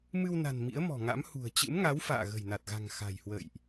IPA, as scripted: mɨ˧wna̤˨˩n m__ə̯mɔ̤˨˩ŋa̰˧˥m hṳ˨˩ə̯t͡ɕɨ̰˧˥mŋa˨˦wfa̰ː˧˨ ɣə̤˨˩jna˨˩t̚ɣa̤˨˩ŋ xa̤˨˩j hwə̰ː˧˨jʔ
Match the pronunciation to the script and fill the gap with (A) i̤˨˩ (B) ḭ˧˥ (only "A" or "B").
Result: B